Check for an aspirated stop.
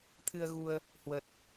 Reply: present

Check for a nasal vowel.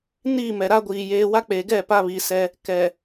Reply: absent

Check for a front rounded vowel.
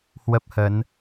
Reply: absent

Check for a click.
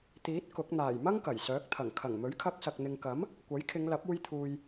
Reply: absent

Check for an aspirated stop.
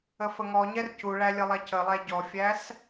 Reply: absent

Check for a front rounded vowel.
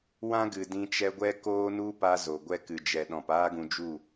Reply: absent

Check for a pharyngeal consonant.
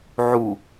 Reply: present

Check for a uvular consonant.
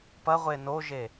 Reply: present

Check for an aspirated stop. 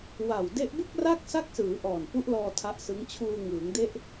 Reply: present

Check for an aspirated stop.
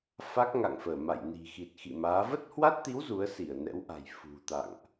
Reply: absent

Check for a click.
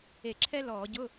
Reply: present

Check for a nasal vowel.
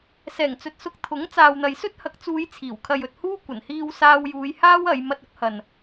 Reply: absent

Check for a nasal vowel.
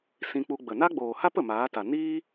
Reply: present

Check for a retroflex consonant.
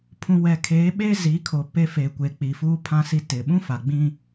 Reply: absent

